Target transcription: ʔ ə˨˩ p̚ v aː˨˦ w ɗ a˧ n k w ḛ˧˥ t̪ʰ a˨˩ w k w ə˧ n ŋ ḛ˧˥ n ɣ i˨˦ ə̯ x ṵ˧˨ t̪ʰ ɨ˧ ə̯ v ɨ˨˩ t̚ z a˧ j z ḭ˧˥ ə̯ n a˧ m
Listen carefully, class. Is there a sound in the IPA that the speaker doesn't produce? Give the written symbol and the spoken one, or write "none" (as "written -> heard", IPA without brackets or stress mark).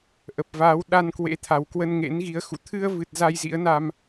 none